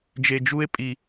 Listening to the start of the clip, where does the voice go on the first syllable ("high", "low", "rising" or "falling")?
low